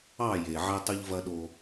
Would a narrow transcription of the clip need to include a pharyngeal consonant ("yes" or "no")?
yes